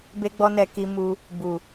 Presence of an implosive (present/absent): absent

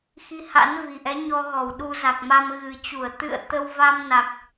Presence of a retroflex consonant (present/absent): absent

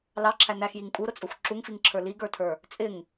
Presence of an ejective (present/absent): present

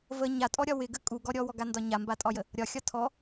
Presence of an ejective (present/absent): present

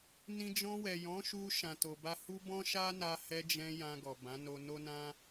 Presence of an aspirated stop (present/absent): absent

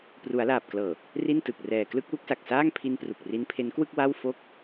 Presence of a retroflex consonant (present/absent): absent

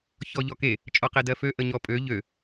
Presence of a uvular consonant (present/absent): present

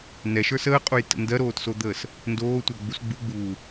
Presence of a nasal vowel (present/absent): absent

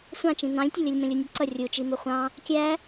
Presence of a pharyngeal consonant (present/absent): absent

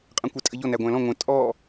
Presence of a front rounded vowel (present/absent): absent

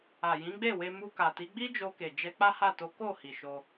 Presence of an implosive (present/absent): absent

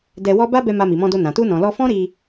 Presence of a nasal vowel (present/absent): present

